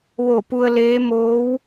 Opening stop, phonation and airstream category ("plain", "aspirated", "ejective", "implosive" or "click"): plain